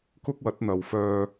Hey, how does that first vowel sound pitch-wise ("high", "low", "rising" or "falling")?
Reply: high